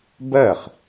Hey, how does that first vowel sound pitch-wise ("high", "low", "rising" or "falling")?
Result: falling